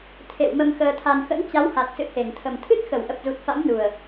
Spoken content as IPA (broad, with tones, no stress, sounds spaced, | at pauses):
t̪ʰ ḛ˧˨ w m ə˧ m x əː˧ t̪ʰ a˧ n x ə̰˧˥ n t͡ɕ a˨˦ w h a˨˩ t̚ s ɨ̰˧˨ h e˧˩ ŋ t̪ʰ ə˨˩ m t̪ʰ ɨ˦˥ t̚ x ə˧˩ w ʔ ə˨˩ p̚ z u˨˩ t̚ f a̰˧˥ m n u˨˩ ə̯